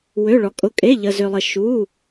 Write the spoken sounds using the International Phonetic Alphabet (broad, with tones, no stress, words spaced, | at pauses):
wø˧˥˧ɭɔ˧kʼʊ˧˥˧ kʼe˧˥˧ʎə˧zø˧lˠə˧ ʃu˧˥˧